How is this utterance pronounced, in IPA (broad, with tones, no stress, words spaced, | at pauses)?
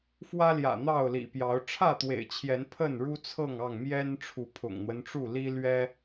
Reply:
fwä˦ljä̰˨˩ n̪ɑ˥˨ʊ̯lḭ˨˩pjɑ˨˦ʊ̯ ʈ͡ʂʰä˥˨t̪wḛ˨˩ɪ̯t͡ɕʰjɛ˨˦n pʰə˥˨nɻu˦ t͡sʰɤ˥˨ŋɑ˥˨ŋ mjɛ˦n ʈ͡ʂʰu˨˦pʰʊ̰˨˩ŋn̪wə˦nʈ͡ʂu˥˨ li˦lɥɛ˦